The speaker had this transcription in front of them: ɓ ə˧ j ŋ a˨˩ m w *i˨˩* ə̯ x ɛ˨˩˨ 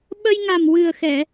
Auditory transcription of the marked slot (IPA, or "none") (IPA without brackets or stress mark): ɨ˨˩